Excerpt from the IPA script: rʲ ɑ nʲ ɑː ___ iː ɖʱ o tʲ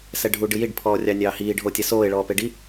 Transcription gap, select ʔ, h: h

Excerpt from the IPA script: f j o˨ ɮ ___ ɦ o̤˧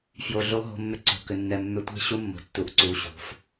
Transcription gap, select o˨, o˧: o˧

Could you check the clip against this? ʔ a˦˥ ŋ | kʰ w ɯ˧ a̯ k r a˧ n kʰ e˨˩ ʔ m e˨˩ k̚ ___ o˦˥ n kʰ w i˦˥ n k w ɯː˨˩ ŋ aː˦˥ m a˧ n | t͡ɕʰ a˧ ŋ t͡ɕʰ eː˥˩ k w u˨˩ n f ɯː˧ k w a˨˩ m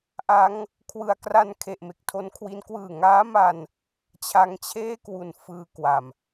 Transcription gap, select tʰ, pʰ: tʰ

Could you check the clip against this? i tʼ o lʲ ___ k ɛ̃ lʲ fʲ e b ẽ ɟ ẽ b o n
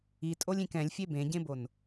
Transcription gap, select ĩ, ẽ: ĩ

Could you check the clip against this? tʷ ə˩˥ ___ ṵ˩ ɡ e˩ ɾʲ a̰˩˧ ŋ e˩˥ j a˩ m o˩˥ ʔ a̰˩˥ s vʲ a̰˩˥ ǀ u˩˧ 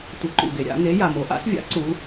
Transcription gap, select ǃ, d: ǃ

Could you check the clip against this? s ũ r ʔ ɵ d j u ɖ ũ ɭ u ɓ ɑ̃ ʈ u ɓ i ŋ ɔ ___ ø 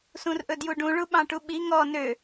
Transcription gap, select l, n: n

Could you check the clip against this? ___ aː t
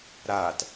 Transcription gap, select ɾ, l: ɾ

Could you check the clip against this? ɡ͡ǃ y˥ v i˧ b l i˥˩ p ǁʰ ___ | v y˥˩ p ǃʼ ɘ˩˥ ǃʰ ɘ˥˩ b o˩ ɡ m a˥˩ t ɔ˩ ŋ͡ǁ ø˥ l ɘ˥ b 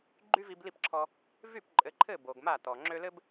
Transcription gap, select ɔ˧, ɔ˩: ɔ˧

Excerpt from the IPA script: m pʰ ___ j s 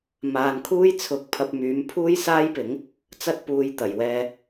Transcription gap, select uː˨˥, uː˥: uː˥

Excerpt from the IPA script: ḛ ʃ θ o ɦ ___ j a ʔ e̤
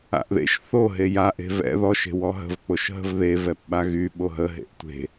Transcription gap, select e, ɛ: e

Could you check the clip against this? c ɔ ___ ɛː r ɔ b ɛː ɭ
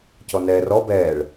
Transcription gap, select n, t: n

